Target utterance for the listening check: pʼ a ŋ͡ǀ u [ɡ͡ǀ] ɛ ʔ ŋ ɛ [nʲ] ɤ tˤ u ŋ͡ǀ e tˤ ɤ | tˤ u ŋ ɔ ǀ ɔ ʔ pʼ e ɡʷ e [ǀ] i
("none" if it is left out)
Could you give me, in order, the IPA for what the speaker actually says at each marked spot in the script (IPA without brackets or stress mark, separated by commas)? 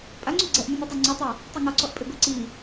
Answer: ɡ͡ǀ, nʲ, ǀ